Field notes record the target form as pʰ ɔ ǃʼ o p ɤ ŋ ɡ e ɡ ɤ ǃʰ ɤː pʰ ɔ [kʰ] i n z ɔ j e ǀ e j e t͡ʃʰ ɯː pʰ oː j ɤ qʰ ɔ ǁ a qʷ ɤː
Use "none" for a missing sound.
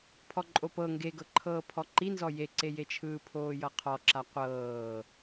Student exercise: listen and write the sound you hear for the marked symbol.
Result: ǃ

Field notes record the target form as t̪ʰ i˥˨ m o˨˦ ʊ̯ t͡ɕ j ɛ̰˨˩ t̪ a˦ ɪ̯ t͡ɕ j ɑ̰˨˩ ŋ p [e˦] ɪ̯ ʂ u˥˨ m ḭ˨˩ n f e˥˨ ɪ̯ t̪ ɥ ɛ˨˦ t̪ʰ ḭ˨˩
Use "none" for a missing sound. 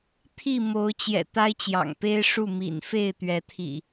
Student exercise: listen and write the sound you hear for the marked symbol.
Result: e˦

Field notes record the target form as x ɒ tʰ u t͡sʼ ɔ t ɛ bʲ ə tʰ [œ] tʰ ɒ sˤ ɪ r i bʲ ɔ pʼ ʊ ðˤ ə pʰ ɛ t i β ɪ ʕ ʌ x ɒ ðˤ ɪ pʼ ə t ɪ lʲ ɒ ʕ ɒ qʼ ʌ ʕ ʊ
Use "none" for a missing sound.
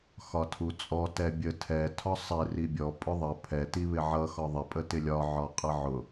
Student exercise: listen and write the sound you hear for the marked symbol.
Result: ɛ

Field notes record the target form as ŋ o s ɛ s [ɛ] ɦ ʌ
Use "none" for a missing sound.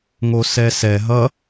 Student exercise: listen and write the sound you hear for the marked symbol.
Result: ɛ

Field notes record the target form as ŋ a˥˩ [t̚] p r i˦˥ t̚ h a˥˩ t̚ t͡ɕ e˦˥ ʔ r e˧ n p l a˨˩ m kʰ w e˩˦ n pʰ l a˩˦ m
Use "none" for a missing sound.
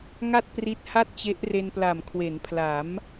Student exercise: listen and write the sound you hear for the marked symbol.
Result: t̚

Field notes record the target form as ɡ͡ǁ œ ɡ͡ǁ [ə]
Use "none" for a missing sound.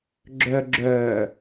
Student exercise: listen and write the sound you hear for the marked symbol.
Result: œ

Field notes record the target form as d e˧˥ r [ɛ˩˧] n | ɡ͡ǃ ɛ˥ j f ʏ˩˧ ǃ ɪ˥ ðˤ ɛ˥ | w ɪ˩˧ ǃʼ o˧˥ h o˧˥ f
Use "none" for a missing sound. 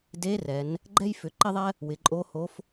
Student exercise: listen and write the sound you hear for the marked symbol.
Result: ɛ˩˧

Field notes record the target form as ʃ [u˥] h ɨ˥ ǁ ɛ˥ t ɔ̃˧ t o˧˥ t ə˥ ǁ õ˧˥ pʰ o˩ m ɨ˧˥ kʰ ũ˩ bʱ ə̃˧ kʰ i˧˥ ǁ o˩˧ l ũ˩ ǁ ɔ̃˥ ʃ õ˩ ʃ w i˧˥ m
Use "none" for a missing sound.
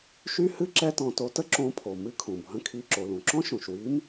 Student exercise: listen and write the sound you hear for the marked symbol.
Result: y˥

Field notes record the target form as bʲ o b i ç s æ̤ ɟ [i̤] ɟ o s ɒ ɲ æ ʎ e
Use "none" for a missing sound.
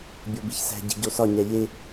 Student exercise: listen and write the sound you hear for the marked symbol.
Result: i̤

